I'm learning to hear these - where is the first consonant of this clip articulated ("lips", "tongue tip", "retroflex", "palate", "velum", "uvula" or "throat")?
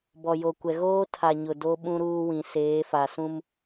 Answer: lips